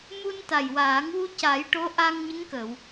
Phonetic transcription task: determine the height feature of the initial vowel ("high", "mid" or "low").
high